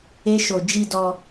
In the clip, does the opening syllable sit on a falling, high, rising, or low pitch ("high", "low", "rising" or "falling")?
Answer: high